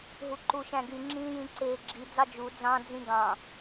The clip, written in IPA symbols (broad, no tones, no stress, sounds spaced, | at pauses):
ɦ u ǃ u ʃ æ̃ ɡ y ŋ͡ǁ ĩː j ĩ ǀ eː ɡ͡ǁ i d͡z ɑ d͡ʒ u d͡z ɑ̃ d͡z ĩ ɡ ɑ̃